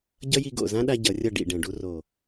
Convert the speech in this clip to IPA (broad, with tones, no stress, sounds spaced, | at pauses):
ɟ ʌ˦ j i˧ ɡ o̰˨ z ã˦ ɗ a˧ ɟ ʌ˨˦ rʲ ʌ˦˨ ɖ ḭ˨ ɖ ɛ̃˨ ɖ u˧ r o˨